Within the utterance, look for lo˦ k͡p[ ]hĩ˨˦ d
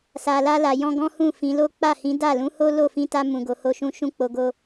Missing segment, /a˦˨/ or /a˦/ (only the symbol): a˦˨